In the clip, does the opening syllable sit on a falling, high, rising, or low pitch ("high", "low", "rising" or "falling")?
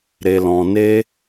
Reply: low